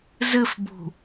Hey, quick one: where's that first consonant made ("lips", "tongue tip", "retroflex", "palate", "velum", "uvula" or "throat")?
tongue tip